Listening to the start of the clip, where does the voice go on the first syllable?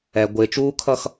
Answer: low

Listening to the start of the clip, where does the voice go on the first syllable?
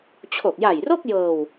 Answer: low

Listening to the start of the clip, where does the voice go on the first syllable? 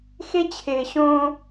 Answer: high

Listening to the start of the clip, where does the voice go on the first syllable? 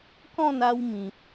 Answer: falling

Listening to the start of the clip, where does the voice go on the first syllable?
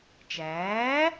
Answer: rising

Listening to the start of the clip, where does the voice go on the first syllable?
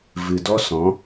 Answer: low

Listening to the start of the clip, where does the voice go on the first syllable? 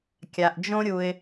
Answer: low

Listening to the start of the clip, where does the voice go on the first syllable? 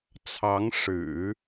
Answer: rising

